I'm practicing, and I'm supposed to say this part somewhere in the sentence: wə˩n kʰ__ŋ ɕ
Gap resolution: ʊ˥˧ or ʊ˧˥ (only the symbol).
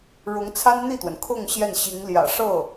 ʊ˥˧